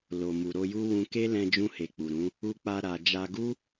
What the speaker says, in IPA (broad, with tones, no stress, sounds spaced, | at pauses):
l o˨ m u˨ ɾ o˧ j u˦ w ũ˧ k e˦ l ɛ̃˧ d͡ʒ ũ˧ h e˨ k͡p u˨ ɾ ũ˨˦ | u˧ k͡p a˧ ɾ a˧ d͡ʒ a˧ ɡ u˦